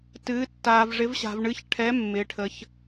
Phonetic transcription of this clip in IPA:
t ɨː˩˧ tː aː˩ v ʐ ɪ˩˧ v ɕ a̤˩ v ɳ ɨ˩˧ ç ʈʰ ɛ˩˧ mː ɪː˩ ʈʰ ə˩ ç

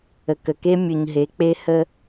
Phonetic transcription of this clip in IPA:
ə˨ k ə˨ k e˦ mʲ ʊ˨ ɲ ɦ e˨˦ k͡p e˦ h ə˦

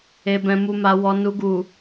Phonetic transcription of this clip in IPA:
e˨ b ɛ̃˨ m u˨ m a˨ w ɔ˨ n u˨ ɡ u˨

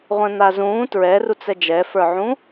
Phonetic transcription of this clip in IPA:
ʁʷ ɛ̃ n̪ a z ũː t ɹ ɛ r u t͡s ɛ d͡ʒ ɛ f ə˞ ʕ ũ

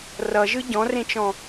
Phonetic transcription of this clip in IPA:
r ʌ ʒ ɯ ɟ ɔ̃ r ẽ t͡ʃ ɔ̃

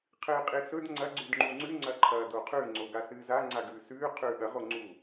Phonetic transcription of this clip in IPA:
qʰ ɨː qʼ i s ɵ d ŋ͡ǀ ɐ ɡ͡ǀ ʉ d ŋ͡ǃ u ŋ͡ǀ ʉ ŋ͡ǀ ɐ ǃʰ ɐː d o qʰ ʉ ŋ͡ǀ o ɡ a s ɨː z a ŋ͡ǀ a ɡ ʉː s ʉː qʰ ʉː ɠ ɐ ʁ o ŋ͡ǀ u

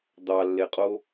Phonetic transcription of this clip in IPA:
d̪ ɑ lː e qʼ o

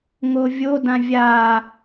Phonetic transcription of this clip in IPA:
ŋ o vʲ o d ã vʲ a

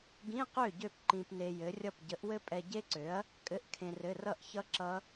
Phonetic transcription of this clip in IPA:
ɡ ĩ˧˥˧ q ø˥˩ ɟ ø˥˩ p ǃ ĩ˧ p n e˧ j ɘ˨˥ rʲ ʌ˥˩ p ɟ ə˨˥ ʔ w ɘ˦˥ pʼ ɛ˧ ɟ e˦˥ ǀ ø˨˥ ɐ̯ | kʼ ɘ˧˥˧ ʔ kʰ ẽ˧ r ɘ˧˥˧ r ʌ˥˩ ʔ ç ʌ˦˥ ǁ ʌ˦˥

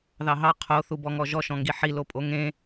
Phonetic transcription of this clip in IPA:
ð ɑ ɦ ɑ qʰ o θ u b ɔ ŋ ɔ ʒ ɔ ʃ ɔ̃ ŋ ɡ i ħ i l o pʼ o ŋ ẽ

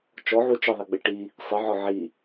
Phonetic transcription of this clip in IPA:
t͡ʃ ɔ ʕ u t͡ʃ ə ðˤ i ɡ͡b ɪ ʈ i | sˤ ɪ ʕ ɒ ʕ i

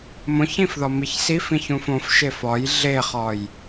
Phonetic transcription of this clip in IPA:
m õ ç ĩ f ð ɒ m i ç s i f ĩ ç ũ f õ f ʃ e f ɒ j ɮ e χ ɒ j

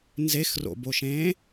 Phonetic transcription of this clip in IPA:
n z e x r o̰ b o ʃ ẽ

